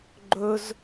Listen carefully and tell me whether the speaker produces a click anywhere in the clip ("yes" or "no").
yes